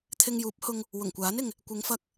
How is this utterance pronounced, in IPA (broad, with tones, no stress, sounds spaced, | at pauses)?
t̪ʰ ɪ˧ ŋ j uː˨˥ p̚ h ʊ˧ ŋ | w ʊ˨˩ ŋ kʷ aː˨˥ n ɪ˨ ŋ | kʷ ɪ˨˧ ŋ f ɐ˧ k̚